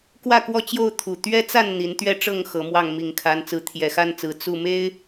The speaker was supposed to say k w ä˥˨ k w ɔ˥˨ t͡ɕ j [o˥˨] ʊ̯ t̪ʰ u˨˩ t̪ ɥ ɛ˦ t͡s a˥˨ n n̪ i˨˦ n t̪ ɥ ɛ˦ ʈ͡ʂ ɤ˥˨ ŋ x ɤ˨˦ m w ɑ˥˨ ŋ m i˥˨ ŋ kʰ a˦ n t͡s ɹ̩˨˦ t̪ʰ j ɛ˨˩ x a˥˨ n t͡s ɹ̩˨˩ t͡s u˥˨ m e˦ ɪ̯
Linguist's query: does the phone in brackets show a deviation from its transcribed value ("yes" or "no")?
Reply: no